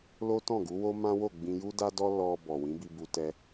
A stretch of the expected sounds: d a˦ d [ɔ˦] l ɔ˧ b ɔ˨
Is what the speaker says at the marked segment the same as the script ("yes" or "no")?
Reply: yes